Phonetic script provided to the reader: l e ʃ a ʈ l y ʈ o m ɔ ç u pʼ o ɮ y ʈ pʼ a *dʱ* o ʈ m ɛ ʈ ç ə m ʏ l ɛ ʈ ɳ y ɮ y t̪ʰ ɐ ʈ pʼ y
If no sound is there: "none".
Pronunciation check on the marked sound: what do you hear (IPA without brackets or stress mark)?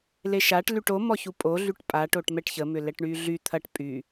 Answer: ʈ